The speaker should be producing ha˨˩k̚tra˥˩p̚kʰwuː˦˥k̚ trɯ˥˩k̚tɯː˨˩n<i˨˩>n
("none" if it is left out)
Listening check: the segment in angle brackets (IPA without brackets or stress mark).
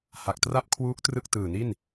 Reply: i˥˩